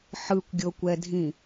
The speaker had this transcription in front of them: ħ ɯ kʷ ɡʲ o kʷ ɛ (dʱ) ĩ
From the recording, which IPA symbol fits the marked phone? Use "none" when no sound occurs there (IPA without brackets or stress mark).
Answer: dʱ